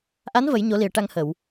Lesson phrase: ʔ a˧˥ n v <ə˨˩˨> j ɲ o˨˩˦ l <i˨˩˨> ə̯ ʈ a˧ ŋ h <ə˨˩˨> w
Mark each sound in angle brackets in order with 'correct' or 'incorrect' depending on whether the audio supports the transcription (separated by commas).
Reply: incorrect, correct, correct